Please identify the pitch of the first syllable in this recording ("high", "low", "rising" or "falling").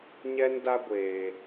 high